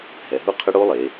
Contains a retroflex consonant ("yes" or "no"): yes